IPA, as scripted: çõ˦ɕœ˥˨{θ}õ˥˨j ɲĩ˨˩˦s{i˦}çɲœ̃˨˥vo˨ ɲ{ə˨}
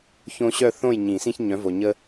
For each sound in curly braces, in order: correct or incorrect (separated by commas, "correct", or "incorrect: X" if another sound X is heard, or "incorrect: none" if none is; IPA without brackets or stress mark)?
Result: correct, incorrect: ĩ˦, incorrect: ə˦